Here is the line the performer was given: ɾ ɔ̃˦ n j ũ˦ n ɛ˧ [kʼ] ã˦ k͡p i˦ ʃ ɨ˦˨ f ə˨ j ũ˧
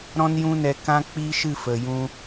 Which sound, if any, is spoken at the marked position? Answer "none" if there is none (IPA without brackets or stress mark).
k